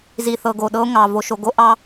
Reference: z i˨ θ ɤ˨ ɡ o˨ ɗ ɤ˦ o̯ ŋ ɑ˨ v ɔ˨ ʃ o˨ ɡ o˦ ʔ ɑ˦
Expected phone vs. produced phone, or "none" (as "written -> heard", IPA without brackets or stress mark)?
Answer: ɔ˨ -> o˨